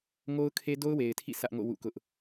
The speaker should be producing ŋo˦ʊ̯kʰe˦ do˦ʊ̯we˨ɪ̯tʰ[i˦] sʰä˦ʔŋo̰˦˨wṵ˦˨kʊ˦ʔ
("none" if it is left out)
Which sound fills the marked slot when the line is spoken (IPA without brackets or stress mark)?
ḭ˦˨